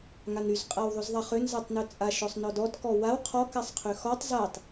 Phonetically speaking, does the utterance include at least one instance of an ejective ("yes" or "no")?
yes